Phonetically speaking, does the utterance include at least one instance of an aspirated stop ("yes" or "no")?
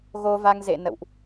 no